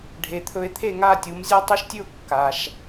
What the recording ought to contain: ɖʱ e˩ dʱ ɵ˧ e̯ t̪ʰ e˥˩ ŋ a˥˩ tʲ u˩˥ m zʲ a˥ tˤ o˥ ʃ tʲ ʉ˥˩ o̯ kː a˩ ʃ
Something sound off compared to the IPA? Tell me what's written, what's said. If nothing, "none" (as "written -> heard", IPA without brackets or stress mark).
dʱ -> t̪ʰ